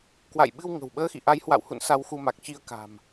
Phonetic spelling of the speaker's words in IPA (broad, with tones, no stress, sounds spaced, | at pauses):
k w a̰˧˨ j ɓ ɨ˧ w ŋ ə̤˨˩ w ɓ əː˧ x ḭ˧˨ ʔ a˨˦ j h w a̰˧˨ w h ṵ˧˨ n s a˧ w x u˧ m a˨˩ k̚ t͡ɕ i˧ ə̯ k a̤˨˩ m